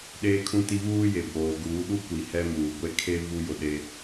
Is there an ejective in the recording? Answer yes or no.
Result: no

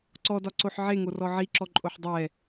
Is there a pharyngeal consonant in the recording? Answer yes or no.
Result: yes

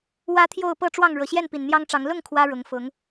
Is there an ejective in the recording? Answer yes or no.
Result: no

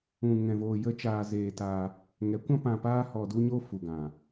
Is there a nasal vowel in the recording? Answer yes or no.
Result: yes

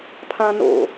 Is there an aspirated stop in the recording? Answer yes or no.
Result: yes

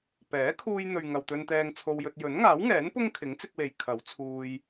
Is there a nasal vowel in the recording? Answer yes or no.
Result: no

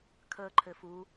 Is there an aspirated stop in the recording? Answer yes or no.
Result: yes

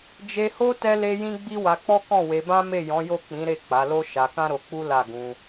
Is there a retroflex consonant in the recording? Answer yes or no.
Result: no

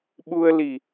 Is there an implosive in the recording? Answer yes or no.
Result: yes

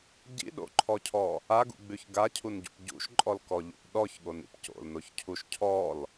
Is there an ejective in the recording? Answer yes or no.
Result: yes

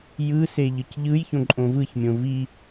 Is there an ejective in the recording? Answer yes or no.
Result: yes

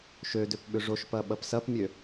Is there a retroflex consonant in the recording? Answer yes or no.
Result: yes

